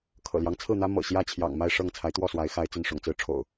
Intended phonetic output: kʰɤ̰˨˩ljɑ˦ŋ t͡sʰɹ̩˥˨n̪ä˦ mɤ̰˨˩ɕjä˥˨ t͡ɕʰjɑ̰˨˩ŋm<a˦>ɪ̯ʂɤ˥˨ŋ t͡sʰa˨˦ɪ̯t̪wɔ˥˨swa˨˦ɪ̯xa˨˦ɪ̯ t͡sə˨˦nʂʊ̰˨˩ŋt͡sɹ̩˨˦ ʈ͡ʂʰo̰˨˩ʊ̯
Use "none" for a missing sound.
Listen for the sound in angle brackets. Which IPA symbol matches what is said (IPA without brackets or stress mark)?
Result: a˥˨